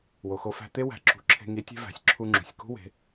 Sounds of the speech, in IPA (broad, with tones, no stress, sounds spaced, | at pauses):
w o˩ x o˧ f æ̤˧ t̪ e˥ w æ̤˩˧ ǁ ṳ˩ ǁʰ e̤˧ ŋ i˧˥ tʲ e̤˥ v æ̤˩˧ sʲ ǁʰ u˧ ŋ͡ǁ ṳ˩ sʲ k ṳ˥ w e̤˩˧